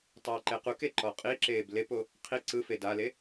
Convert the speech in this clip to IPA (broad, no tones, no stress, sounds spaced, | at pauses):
tˤ ɛː ǃ e q u k e ǃ ɔ qʼ i ǁ eː b l e p o | qʰ i ǀ ɯ f e d a l e